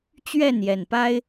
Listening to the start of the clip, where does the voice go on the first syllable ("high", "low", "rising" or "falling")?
falling